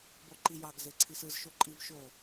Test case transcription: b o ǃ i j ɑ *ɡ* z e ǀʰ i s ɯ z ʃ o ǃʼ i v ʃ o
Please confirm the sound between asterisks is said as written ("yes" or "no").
yes